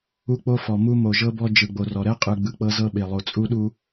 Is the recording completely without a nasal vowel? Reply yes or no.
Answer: yes